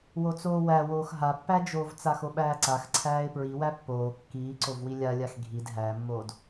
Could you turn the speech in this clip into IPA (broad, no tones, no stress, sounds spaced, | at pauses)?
w o t͡s oː w æ w oː x ɦ a pː æ d͡ʒ oː v t͡s a x o ɓ æː ǀ a x ǀʰ æː ɪ̯ p ɹ i w æ pː oː kː iː ǀ o v w i lʲ a lʲ a x ɡʱ i d ɦ æ mː oː d